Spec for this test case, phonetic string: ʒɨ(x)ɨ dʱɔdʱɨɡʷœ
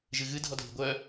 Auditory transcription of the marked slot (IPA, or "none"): ɣ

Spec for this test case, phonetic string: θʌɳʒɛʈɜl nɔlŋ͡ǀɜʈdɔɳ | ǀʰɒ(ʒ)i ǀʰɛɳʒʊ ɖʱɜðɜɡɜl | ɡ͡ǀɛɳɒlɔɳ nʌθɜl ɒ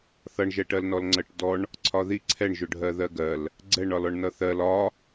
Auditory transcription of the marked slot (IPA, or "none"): ð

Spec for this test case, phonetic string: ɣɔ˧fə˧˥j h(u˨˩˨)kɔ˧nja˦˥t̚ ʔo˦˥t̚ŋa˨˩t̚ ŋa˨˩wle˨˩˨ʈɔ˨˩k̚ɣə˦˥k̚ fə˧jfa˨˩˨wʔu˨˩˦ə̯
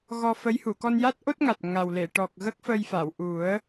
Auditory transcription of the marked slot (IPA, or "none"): u˨˩˨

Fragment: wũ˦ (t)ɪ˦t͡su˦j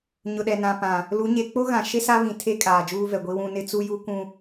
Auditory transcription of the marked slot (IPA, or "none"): n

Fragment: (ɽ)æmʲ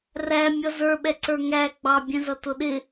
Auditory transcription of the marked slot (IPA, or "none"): r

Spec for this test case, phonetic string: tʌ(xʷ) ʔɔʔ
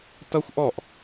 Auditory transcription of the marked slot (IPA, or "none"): xʷ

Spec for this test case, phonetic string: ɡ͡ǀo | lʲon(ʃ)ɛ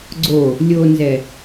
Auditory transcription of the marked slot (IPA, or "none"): z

